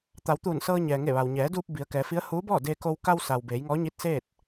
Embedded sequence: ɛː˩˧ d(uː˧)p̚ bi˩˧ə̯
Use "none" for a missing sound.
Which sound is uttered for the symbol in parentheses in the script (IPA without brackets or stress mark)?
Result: uː˧